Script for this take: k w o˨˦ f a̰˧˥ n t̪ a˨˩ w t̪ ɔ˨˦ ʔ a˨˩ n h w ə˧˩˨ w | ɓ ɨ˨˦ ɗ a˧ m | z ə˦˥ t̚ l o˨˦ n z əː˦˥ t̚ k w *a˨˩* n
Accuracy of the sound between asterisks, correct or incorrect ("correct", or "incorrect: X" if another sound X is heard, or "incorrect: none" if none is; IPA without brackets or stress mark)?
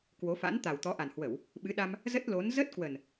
incorrect: ə˨˩